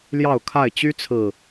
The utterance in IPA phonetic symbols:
ljɑ˥˨ʊ̯kʰa˥˨ɪ̯ t͡ɕy˦t͡sʰɹ̩˨˩

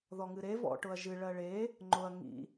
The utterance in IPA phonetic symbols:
ðɔŋɨɾe vɔ̰ ʈʊɐ̯ʒɨ ɭɜɭe | ŋ͡ǃʊɐ̯ ŋḭ

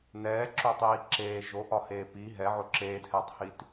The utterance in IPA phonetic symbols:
nɛːǁotˤiː ǁeː ʒoʔɒheː pi ɦɛʕo ǁeːdhɛːtˤhit

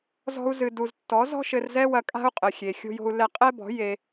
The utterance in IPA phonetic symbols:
zɔ̤˧u̯zɨ˨du˨z tːɔ˨˦zɔ̤˦ʃɘ˧rzɛ˦ wɐ˧kʼa̤˦u̯qʼɘ˨xʲe˨ xʲo̤˦jo̤˦u̯ lɛ˧qʼɛ˦bɔ̤˨˦ je˧

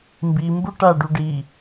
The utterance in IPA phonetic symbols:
mbimbu ʈaɖu ɖi

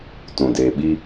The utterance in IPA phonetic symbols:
tũ˨deː˨ɓi˦

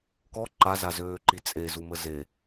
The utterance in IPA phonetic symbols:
kɔ ǃazazøːǃi t͡sʼezumə ze

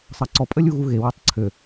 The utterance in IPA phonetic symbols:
sˤɑǀɔ pʼəlʲuɣuɣe wøtˤǀʰø

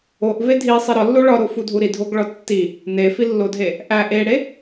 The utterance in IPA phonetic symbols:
oʔve dʱisˤi ɾɒlːo ɭɒɾofudʱu ɾidʱoɡɭɒ tːi | nefilːodʱe | ʔæ ʔeɽe

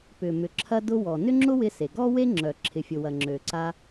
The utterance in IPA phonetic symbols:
pʏ˩mʏ˩ ǁʰɐ˧ dʊ˧wɔ˩ nʏ˥ŋ͡ǁʊ˥wɪ˧se˩ ɡɔ˥ we˥ŋ͡ǁœ˩ ǁʰɪ˩fʲʊ˩wɐ˩ ŋ͡ǁø˩ǀa˧

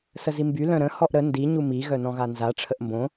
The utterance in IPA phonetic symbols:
səzimby lœ̃ɾə̃ hɔʔɾə ndi ɲumi ɣœnɔ̃ɣanza ʈ͡ʂʰəʔmbõ

